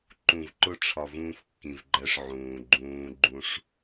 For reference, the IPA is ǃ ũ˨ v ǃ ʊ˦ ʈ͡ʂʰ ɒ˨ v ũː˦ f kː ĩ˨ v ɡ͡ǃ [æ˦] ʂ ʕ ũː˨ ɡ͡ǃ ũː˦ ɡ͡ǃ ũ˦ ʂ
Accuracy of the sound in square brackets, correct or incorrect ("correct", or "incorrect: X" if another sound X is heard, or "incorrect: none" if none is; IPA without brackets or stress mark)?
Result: correct